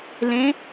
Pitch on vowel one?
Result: rising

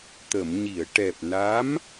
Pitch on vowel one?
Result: low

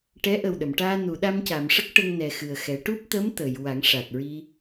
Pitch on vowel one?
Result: rising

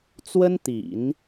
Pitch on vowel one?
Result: high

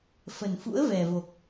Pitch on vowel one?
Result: low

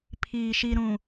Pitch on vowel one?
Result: low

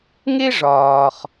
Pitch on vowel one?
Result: high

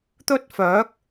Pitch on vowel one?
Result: high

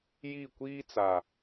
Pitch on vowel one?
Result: falling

